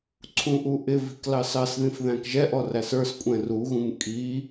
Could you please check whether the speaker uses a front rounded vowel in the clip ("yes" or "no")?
no